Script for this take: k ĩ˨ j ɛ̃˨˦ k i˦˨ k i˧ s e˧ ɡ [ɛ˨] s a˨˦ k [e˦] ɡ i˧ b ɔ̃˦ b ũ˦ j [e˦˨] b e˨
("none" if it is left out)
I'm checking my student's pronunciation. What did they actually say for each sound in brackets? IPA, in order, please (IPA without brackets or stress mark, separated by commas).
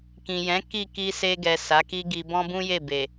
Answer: ɛ˨, i˦, e˦˨